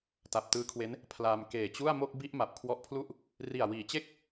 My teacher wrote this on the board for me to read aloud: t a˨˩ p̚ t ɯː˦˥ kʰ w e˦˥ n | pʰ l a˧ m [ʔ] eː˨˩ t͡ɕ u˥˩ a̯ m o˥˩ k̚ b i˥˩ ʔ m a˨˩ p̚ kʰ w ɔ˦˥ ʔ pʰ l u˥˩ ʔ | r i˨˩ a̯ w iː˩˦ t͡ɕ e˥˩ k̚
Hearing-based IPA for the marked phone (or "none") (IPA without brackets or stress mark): k